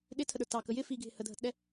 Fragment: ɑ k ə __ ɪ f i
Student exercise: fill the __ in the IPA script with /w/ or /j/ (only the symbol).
j